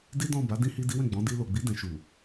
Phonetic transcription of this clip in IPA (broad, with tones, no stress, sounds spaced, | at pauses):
d i˦ d ɔ̃˦˨ b a˨˦ d ĩ˦ h i˦ d i˦ w ɛ̃˦˨ ɡ͡b ɔ̃˨˦ d i˧ l o˨ ɡ͡b i˨˦ d ɛ̃˧ ʃ u˨